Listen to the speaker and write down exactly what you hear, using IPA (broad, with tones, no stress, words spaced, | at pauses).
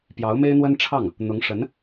pjɑ˧˥ʊ̯me˥ɪ̯n̪wə˥nʈ͡ʂʰɑ˥˩ŋ | n̪ʊ˧˥ŋʂə˧˥n